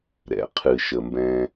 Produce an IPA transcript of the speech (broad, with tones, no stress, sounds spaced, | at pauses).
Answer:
ɾ ɛ̰˩ qʰ ɨ˩ ʃ ə˩ m b ɛ̃˨